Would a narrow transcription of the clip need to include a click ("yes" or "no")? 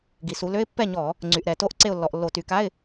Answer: yes